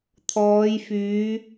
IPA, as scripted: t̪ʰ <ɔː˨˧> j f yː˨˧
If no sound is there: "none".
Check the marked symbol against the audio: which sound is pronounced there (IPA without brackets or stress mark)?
ɔː˨˧